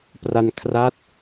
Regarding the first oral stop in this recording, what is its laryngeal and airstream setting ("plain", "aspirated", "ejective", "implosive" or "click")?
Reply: plain